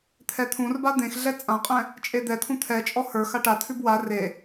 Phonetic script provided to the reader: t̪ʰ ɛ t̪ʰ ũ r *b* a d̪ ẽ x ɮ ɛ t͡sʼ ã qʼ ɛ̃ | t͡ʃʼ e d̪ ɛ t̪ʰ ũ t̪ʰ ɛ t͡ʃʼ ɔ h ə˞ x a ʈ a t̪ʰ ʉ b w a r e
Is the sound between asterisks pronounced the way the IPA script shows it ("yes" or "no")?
yes